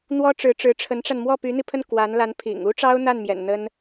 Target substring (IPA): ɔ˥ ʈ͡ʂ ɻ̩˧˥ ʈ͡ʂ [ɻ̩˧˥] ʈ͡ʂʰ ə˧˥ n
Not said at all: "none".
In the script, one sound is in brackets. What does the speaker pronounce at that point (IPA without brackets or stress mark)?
ɻ̩˧˥